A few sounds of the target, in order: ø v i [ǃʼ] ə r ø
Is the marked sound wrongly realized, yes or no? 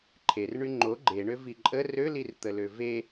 no